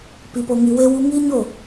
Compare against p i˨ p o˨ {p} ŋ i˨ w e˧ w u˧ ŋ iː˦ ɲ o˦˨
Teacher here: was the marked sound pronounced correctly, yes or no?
no